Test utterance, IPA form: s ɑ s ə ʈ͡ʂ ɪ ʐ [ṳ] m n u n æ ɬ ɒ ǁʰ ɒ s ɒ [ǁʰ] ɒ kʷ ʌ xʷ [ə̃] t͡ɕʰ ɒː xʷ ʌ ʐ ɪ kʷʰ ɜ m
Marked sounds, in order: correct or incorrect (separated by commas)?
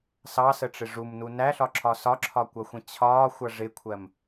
incorrect, correct, correct